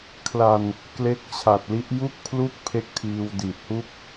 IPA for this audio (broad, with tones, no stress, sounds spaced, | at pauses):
kʰ l a˨˩ n | k l e˦˥ k̚ t͡ɕʰ a˨˩ t̚ l i˦˥ ʔ j u˥˩ k̚ pʰ l u˥˩ k̚ pʰ e˦˥ k̚ tʰ iː˧ w d i˨˩ t̚ h u˥˩ k̚